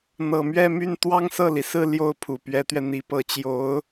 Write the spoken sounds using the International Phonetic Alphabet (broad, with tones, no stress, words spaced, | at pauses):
n̪ɤ˨˩mɥɛ˥˧my˥˩n t̪wɑ˥ŋsɤ˥˩li˩sɹ̩˥˧ ljo˥˩ʊ̯ pʰu˨˩pɥɛ˧˥t̪ɥɛ˧n̪i˧˥ pɤ˧˥ t͡ɕjo˧˥ʊ̯